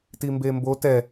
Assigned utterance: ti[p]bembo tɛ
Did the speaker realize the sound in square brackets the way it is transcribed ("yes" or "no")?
no